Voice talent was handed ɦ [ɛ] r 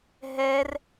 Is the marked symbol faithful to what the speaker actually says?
yes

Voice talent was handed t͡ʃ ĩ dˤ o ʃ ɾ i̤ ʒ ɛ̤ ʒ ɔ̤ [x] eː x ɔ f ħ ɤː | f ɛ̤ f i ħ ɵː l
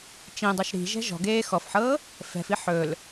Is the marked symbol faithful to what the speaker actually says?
no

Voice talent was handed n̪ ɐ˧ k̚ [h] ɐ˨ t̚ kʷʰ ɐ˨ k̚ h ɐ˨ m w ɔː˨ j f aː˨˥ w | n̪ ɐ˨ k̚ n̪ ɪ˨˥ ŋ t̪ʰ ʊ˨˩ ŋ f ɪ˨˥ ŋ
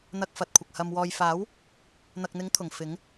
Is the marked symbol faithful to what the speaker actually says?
no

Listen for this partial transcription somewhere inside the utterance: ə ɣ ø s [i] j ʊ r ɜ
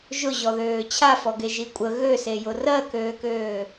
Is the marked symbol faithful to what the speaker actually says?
no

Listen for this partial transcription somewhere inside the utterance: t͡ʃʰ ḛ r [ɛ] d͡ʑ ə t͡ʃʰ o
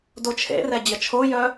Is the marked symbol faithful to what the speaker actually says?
yes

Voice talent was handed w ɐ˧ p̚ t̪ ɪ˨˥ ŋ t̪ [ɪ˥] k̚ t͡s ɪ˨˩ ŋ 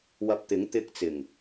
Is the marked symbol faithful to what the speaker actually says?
no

